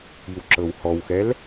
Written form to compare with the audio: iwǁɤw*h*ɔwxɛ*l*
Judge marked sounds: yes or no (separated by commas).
yes, yes